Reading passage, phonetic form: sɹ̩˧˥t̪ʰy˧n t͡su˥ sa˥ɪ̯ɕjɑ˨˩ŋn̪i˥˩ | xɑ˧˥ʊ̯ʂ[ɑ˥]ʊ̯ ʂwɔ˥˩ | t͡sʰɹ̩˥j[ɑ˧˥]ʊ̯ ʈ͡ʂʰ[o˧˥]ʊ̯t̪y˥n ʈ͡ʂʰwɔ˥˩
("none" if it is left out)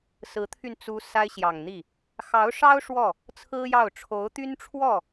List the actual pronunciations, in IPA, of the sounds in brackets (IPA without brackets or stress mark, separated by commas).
ɑ˥, ɑ˥˩, o˧˥